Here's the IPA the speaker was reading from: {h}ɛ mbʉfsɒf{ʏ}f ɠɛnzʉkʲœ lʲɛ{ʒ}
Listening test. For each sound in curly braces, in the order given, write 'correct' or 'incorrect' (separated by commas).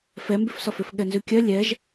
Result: incorrect, correct, correct